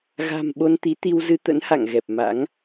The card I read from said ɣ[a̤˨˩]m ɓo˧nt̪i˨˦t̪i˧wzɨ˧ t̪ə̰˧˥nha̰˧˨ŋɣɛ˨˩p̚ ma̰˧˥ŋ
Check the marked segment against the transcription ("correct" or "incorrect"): correct